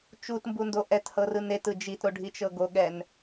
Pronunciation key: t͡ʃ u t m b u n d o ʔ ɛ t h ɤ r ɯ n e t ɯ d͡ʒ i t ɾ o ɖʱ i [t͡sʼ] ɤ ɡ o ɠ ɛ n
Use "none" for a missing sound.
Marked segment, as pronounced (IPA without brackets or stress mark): t͡ʃ